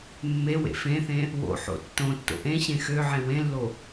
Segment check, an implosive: absent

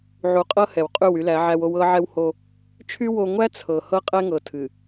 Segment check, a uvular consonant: present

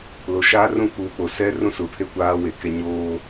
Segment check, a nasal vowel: present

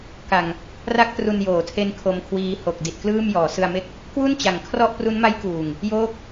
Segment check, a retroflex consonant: absent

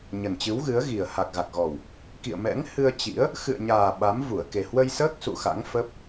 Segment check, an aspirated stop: absent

